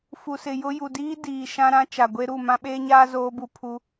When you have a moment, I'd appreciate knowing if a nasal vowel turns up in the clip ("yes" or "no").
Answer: yes